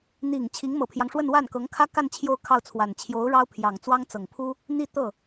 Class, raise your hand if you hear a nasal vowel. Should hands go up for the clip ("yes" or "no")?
no